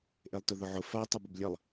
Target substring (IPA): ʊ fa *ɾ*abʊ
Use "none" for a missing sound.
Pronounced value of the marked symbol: tˤ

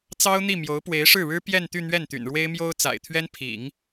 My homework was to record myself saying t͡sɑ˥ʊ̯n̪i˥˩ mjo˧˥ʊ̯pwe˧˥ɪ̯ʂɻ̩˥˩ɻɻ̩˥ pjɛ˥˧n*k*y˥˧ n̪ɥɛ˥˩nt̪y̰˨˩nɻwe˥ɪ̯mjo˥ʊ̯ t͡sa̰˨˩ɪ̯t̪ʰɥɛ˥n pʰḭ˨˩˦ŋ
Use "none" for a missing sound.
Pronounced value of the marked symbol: t̪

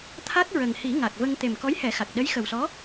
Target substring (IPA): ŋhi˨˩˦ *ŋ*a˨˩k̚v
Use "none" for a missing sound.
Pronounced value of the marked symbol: ŋ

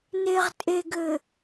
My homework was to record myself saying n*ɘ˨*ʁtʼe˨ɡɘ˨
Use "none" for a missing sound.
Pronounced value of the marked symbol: e˨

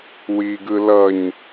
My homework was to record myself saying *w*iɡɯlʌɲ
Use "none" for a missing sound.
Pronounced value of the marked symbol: w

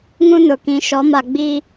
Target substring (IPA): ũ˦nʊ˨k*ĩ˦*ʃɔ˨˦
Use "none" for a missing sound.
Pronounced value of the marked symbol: ĩ˨˦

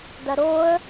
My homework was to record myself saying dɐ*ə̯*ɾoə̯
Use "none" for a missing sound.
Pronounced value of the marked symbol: none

